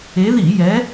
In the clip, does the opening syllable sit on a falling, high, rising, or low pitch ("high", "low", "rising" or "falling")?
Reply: rising